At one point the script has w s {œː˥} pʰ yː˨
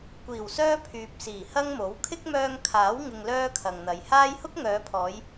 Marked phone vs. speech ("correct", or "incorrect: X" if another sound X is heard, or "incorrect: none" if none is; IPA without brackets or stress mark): correct